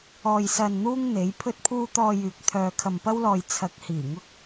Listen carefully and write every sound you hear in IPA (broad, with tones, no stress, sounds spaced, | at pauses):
ɔː˧ j s ɐ˧ n n̪ uː˥ ŋ n̪ e˨˥ j pʰ ɵ˥ t̚ pʰ uː˥ t̪ ɔː˧ j yː˨ k̚ t̪ʰ œː˧ kʰ ɐ˧ m p ɐ˥ w l ɔː˧ j t͡sʰ ɐ˨˥ k̚ h iː˨˩ ŋ ʊ˧ k̚